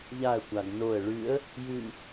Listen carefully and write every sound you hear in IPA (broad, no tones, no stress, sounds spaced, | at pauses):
ʎ a ə̯ kʷ a ɡ n o ə̯ ɭ ʉ ə̯ | j ʉ